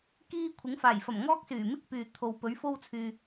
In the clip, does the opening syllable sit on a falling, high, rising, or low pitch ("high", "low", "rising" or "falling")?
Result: high